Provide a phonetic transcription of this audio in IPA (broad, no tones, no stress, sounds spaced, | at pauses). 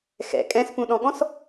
x ɛ̰ kʼ ɛ̃ s p ũ ɗ ɔ̃ ɠ ɔ̃ s